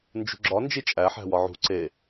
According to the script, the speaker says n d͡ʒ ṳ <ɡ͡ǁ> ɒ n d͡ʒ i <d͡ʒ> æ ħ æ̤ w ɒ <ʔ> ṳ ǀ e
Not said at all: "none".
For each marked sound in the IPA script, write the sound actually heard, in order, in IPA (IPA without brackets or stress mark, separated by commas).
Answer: ɡ͡ǁ, t͡ʃʼ, ʕ